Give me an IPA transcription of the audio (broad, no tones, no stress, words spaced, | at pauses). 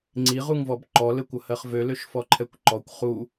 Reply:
ŋ͡ǀiʁuŋvɔb ǃɔlɘkʷʌhɜχ vøløʃfɔǃʰɛkʷ ǃɔkʷ χu